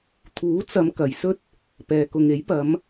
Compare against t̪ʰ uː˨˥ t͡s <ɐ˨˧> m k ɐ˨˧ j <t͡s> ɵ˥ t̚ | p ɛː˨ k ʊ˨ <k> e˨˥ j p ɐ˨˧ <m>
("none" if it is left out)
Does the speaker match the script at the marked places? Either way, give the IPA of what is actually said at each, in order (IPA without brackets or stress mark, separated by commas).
ɐ˨˧, s, ŋ, m